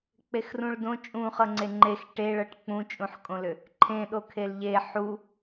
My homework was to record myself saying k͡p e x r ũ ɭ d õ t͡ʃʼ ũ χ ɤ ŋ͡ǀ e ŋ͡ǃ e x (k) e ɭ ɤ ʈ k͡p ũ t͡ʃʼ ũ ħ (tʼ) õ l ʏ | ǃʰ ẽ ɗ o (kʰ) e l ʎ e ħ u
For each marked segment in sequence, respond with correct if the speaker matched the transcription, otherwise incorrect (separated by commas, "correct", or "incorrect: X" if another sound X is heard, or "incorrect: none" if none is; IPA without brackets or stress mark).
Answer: incorrect: ʈ, incorrect: kʼ, correct